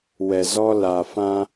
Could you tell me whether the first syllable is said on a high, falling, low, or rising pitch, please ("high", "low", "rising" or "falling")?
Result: low